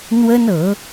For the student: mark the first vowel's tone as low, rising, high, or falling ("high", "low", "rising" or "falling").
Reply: high